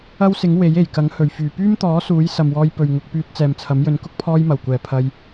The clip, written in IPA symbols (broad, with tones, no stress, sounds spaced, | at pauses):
ɐ˥ w s ɪ˨˥ ŋ w e˨˥ j e˨˩ j k ɐ˨˥ ŋ h ɵ˨˩ ɥ f yː˨˩ p yː˥ m t̪ ɔː˨˥ s uː˨˥ j s ɐ˨ m w ɔː˧ j p ɵ˨ ɥ ŋ ʊ˧ k̚ p yː˧ t̚ t͡s ɛː˨ m t͡sʰ ɐ˨˥ m j ɵ˧ n k ʊ˥ k̚ pʰ ɔː˧ j m ɐ˨˩ w kʷ ɛː˨˩ pʰ ɐ˧ j